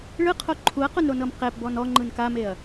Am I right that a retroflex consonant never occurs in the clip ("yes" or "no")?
no